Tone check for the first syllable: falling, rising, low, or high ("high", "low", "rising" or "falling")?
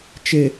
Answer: low